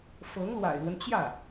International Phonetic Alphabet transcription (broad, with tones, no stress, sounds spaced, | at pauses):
f ɤ˧˥ ŋ l w a̰˨˩ ɪ̯ l w ə˦ n t͡ɕ j ä˥˩